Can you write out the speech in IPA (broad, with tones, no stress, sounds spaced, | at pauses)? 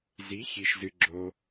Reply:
z i˧˥ ç i˧ ʃ z ɨ˧ ɡ͡ǁ o˧